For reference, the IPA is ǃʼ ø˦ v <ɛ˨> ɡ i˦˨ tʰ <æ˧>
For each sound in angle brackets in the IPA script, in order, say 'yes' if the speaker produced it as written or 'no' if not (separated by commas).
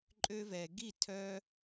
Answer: yes, no